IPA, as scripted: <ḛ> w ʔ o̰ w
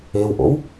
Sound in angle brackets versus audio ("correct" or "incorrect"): incorrect